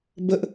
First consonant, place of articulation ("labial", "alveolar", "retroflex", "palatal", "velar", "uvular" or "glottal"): labial